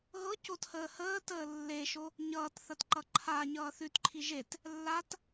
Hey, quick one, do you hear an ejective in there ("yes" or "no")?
no